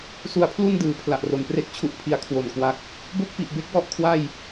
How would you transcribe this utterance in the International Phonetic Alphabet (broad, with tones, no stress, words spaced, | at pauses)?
su˧a̯pʰlu˥˩ndɯː˩˦ pʰla˨˩ʔro˨˩n pre˦˥k̚t͡ɕʰu˨˩ʔpʰi˩˦a̯ kʰwo˨˩nkwa˦˥k̚ | bo˥˩k̚pi˨˩ʔbe˦˥k̚ wɔ˦˥ʔkʰwa˥˩j